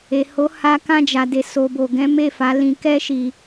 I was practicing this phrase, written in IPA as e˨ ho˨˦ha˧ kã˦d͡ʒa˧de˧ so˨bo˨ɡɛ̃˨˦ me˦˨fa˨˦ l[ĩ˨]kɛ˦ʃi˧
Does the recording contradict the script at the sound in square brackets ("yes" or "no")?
yes